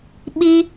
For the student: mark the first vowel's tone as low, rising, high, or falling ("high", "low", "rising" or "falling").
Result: high